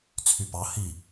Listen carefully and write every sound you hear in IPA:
t͡sʰypɑ hi

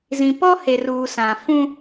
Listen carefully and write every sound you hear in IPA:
zĩ˨pɔ˦ he˨ruː˨ sã˨fũ˦

